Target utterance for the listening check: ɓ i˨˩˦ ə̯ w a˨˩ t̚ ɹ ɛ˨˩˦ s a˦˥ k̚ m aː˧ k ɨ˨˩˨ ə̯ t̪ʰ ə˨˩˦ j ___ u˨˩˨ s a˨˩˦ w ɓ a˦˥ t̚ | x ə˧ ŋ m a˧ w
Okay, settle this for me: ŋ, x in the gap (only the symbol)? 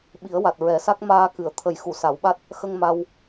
x